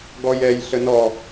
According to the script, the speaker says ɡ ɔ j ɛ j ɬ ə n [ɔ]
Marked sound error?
no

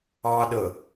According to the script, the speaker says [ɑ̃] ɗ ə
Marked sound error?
yes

